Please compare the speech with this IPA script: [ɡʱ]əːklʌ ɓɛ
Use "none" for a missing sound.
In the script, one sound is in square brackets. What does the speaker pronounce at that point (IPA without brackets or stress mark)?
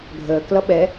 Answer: ɡʱ